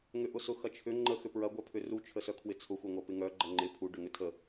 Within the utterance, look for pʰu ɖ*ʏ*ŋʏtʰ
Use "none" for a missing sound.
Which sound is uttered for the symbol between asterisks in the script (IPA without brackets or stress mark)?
ʏ